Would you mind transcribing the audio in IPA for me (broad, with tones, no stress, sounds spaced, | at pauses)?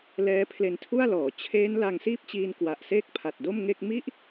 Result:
l ɛː˦˥ pʰ l e˧ n tʰ u˥˩ a̯ l ɔː˩˦ t͡ɕʰ eː˦˥ n l a˧ ŋ s iː˥˩ p̚ t͡ɕ iː˧ n k w a˨˩ ʔ s eː˥˩ k̚ pʰ a˨˩ t̚ d o˥˩ m ŋ e˥˩ k̚ m i˥˩ ʔ